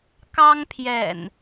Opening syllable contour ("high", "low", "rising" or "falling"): high